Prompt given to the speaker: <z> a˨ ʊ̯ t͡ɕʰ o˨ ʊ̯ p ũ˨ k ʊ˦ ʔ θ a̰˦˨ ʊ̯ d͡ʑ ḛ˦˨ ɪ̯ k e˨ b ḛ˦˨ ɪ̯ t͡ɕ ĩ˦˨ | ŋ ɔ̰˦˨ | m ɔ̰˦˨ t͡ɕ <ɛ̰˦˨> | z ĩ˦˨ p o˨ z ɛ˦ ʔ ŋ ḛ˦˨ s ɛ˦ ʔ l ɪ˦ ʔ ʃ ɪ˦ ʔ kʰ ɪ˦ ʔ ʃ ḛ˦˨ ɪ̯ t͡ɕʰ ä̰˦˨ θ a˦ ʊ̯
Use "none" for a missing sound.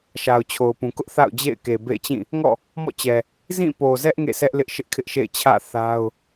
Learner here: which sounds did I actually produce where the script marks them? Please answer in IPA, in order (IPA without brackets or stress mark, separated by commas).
ʃ, ɛ˨